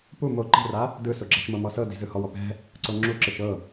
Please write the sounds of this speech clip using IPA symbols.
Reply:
p u m o ǃ e̤ r a | d ɯ s o ɡ͡ǁ a ʃ m ɤ m ɔ s ɤ d i̤ z ɯ h ɔ w ɔ p ɛ̤ | ǀ o ŋ͡ǁ u ǁ ɯ ʃ ɤ

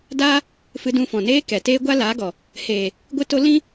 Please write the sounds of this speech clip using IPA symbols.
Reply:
d aː˦ | f ɨ˧ d ũ˧ f ɔ̃˨ n eː˦ k ɛ˨ t eː˦ ɡʷ a˦ l aː˨˦ ɡ ɔ˨ | h eː˨ | ɡʷ ɨ˧ t o˧ l ĩ˦

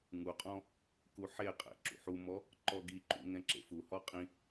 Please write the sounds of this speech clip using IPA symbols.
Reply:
ŋ u qʼ ɔ̃ | k u ħ e qʼ ɛ̰ ǁ ṵ ħ u m ɔ | ǃ ɔ ɡ i ǃ ṵ ŋ ɛ̃ ǁ ḛ f u h ɔ qʼ ĩ

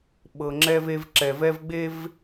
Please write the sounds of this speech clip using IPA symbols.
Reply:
ɓ ɤ˨ ŋ͡ǁ ɛ˦ v e˦ v ǁ ɛ˨ v ɛ˦ v ɡ͡b e˦ v

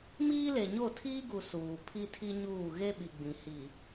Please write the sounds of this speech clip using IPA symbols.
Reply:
m iː˦ l e˨ ɲ o˦˨ tʰ iː˦ ɡ u˨ s uː˨ pʰ i˦ tʰ i˦ ɲ uː˦˨ ɣ e˦ ɓ i˨ ɡ͡b ĩ˨ h i˨

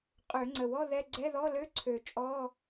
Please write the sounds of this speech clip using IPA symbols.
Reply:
qʼ ø˨˩˦ ŋ͡ǀ ə˨˩˦ w ɔ˧˥˧ ð ɛ˧˥˧ ɡ͡ǀ ɛ˧˥˧ ð ɔ˧˥˧ l ø˧˥˧ ǀʰ ø˨˩˦ t͡ʃʼ ɔ˧˥˧

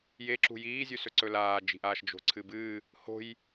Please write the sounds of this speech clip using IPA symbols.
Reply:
j e ǁ ṳ j iː zʲ ʉ s ɵ ǀ ɵ l aː d͡ʒ i̤ ʔ aː ʃ d͡ʒ o̤ ǀʰ ɨ b ɨː | h o̤ j

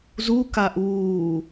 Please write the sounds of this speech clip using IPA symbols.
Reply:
z u k a ʔ uː

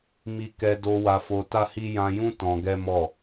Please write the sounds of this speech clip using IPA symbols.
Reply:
m i˧ k ɛ˧ d o˧ w a˧ f o˧ t a˦ h i˦ j ã˧ j ũ˦ t ɔ̃˧ ɡ ɛ˦ m ɔ˦˨

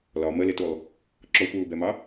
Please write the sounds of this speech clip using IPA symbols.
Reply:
l ɒ m ə l ɪ t u lˠ | ǁ ɔ xʷ ɹ u b ɛ m ɑ

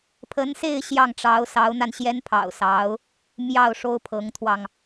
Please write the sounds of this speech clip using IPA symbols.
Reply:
pʰ ə˧˥ n s e˥˧ ɪ̯ ɕ j ɑ˥˩ ŋ ʈ͡ʂ ɑ˧˥ ʊ̯ s ɑ˧˥ ʊ̯ n̪ a˧ n ɕ j ɛ˥ n pʰ ɑ̰˨˩ ʊ̯ s ɑ˧˥ ʊ̯ | m j ɑ˥˩ ʊ̯ ʂ o˥ ʊ̯ pʰ ɤ˧˥ ŋ t̪ʰ w ɑ˧ ŋ

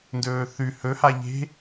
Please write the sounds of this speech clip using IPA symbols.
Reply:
n d ɵː θ ʉ h ɵ h a ʎ e̤

